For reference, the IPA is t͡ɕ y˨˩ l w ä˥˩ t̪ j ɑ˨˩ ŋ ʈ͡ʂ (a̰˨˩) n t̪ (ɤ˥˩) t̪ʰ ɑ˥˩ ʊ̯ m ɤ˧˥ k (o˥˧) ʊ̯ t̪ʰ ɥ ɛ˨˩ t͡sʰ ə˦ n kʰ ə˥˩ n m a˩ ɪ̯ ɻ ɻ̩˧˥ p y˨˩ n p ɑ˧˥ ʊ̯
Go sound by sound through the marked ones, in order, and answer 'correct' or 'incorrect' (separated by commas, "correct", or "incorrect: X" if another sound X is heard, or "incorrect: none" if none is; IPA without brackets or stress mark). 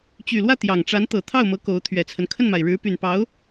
incorrect: a˧˥, incorrect: ɤ˨˩, incorrect: o˧˥